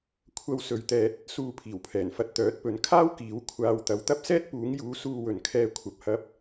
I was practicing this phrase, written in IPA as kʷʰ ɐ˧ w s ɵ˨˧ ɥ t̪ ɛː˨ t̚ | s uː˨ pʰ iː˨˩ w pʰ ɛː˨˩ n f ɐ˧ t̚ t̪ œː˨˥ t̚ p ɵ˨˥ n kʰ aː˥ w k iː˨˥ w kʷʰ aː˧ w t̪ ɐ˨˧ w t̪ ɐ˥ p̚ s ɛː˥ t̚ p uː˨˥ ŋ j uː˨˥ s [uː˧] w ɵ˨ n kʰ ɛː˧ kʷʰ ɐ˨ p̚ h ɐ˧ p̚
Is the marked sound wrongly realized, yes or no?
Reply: no